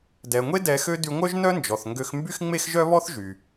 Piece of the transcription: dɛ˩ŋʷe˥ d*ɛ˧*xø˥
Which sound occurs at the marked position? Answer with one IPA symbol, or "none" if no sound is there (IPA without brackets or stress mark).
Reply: ɛ˧